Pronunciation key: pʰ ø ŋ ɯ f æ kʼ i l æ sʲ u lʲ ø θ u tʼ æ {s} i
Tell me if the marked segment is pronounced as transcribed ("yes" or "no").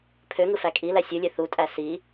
yes